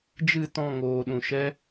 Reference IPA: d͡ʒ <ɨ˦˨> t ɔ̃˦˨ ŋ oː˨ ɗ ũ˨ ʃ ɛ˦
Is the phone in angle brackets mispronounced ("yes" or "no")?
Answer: no